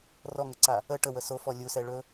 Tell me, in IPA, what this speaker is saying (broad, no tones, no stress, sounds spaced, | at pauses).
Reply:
r ɔ ŋ ə ǀ a | ə ʈ ə w ə s o f ɔ lʲ u s ɛ ɭ ɵ